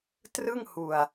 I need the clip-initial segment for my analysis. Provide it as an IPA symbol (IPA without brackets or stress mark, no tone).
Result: t